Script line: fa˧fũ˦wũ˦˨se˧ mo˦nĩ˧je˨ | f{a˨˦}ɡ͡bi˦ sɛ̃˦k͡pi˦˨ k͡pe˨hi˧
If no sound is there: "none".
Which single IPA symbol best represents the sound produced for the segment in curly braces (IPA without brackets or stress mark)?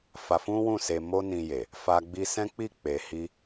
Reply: a˦